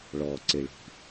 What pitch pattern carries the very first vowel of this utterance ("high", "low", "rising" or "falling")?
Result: low